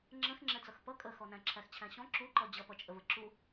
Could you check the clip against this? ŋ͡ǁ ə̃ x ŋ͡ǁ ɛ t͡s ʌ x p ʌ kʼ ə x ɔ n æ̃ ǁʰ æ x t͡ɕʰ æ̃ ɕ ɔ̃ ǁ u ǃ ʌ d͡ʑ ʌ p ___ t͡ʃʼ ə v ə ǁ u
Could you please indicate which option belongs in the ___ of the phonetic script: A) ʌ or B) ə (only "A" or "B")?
A